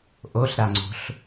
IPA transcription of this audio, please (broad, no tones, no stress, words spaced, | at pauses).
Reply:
ʔoɬɾaŋ͡ǀo̤ɬ